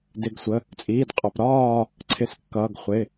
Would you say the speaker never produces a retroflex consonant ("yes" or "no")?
yes